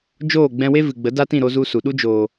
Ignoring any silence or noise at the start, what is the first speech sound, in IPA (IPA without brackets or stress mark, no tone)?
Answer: d͡ʒ